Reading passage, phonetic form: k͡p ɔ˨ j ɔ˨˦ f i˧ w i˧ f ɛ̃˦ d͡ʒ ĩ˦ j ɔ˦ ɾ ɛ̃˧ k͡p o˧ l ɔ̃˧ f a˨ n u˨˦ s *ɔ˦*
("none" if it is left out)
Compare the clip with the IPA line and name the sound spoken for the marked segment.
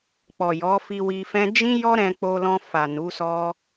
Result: ɔ˦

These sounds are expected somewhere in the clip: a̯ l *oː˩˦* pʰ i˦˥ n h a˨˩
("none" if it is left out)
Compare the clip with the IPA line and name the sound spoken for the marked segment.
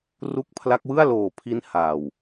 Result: oː˨˩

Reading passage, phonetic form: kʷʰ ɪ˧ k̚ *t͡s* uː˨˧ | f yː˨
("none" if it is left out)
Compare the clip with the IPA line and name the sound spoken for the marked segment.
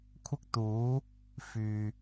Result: t̪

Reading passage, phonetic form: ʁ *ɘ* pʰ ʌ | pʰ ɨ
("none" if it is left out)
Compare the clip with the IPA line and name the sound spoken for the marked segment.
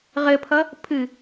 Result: ɘ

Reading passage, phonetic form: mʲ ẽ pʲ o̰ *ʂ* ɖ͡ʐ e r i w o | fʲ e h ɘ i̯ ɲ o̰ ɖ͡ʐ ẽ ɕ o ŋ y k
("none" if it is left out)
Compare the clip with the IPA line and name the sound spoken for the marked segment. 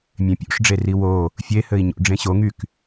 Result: ʂ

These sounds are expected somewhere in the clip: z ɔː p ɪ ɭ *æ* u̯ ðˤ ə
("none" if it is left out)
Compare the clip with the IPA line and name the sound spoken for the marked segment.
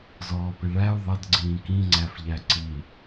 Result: æ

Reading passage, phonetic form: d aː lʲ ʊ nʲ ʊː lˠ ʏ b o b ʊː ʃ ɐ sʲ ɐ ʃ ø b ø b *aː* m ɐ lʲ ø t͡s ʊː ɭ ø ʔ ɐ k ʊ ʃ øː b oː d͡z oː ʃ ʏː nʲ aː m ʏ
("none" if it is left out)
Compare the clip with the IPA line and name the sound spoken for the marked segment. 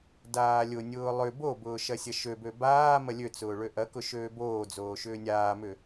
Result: aː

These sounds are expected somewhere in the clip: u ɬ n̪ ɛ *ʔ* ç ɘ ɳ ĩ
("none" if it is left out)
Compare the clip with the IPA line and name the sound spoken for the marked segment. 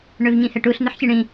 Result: ħ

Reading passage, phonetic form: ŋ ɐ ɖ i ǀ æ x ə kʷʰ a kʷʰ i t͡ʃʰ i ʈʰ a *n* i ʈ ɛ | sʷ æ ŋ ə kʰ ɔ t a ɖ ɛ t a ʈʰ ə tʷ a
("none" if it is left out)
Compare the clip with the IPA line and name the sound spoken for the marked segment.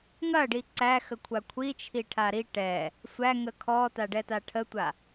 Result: ɾ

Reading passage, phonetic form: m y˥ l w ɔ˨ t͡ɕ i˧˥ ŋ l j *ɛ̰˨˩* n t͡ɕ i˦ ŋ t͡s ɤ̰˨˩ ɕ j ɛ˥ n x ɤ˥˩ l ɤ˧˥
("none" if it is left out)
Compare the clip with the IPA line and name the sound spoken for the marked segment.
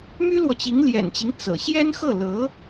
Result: ɛ̰˨˩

